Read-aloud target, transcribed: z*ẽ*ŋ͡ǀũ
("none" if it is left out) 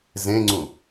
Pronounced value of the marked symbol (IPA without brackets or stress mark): ẽ